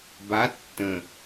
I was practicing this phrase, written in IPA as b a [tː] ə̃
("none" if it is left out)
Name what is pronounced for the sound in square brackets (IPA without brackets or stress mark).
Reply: tː